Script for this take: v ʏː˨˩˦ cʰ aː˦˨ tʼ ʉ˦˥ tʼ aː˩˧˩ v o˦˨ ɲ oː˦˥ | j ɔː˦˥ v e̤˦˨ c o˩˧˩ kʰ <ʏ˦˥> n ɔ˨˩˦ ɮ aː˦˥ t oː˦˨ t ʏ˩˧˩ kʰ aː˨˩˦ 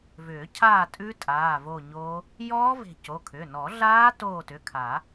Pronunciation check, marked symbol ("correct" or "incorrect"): incorrect